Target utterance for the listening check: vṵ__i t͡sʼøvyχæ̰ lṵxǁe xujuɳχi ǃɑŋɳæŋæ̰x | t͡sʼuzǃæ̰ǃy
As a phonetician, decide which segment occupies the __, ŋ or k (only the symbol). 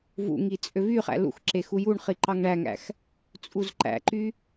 ŋ